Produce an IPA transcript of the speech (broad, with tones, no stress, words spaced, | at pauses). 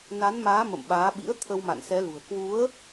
na˨˦nmaː˨˦ mə̰˧˨mɓaː˨˦ɓḭ˧˥ə̯ t̪ʰə˧wma̰˧˨nsɛ˨˦lṳ˨˩ə̯ kwu˨˦ə̯